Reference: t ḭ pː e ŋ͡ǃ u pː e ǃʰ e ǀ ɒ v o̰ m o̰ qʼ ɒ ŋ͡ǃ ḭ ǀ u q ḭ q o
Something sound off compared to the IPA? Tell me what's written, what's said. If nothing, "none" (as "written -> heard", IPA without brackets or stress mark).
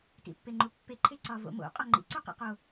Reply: none